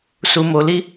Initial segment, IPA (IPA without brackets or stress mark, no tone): s